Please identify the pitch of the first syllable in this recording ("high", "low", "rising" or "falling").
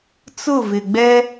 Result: falling